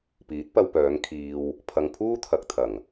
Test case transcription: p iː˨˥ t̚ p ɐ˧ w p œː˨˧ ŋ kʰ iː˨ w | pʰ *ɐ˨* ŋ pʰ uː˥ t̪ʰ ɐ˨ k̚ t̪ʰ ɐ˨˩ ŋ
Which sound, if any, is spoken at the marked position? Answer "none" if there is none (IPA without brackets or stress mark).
ɐ˨